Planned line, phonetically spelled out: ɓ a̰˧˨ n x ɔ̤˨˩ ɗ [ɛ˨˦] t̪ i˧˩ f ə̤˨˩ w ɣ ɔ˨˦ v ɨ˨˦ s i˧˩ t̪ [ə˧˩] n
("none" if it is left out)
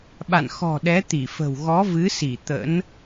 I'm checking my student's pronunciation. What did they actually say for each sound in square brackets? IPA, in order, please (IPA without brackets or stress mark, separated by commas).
ɛ˨˦, ə̰˧˥